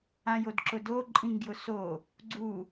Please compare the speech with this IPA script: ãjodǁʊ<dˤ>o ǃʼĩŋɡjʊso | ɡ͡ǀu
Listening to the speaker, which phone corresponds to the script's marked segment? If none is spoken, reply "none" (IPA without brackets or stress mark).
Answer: d